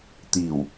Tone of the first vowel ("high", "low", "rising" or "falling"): low